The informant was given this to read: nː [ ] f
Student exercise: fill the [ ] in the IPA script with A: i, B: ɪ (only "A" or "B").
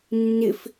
B